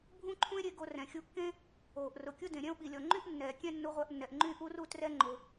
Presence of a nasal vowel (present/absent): present